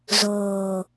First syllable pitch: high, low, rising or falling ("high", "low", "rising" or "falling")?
low